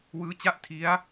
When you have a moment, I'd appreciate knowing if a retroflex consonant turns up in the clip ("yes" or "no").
no